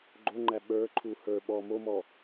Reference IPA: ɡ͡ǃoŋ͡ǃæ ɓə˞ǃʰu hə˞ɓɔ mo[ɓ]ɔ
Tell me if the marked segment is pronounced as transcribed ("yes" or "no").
no